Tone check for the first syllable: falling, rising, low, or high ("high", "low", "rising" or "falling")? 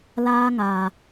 high